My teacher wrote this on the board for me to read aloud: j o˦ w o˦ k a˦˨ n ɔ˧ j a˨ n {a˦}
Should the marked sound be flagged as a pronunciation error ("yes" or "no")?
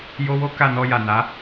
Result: yes